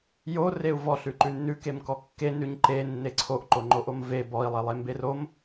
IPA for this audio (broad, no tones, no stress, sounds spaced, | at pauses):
j o r e u̯ v ɔ ɬ ʉ ǃ ʉ nː ʉ k e m k ɔ kː e n ʉ ɲ ǃ e nː e ǀʰ o ʔ ǃ o ŋ͡ǃ o ʔ o m v e b ɔ i̯ lˠ e lˠ e m b e r o m